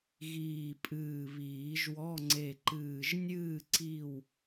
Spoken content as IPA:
ɣiː˨˩pʼɨː˨˩ βiː˨˩˦ʒwɔ˧˥˧ ŋ͡ǀe˨˩ǃɨː˨˩ʒ nʲɨː˦˨ ǀi˦˨w

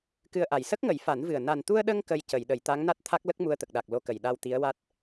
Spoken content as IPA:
kɨ˧ə̯ʔa˨˩j sə˦˥k̚ŋə˨˩˦jfa˨˩˦nvɨ˨˩ə̯ na˨˩nt̪u˧ə̯ɗə˧ŋ kə˧jcə˨˩˨jɗə˨˩˨j t̪a˧˥ŋna˦˥t̚t̪ʰa˦˥k̚lə˦˥k̚ mu˧ə̯t̪ə˨˩k̚ɗa˨˩k̚ lo˧kə˨˩j ɗa˧wt̪i˧˥ə̯wa˦˥t̚

